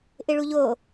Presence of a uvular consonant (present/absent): absent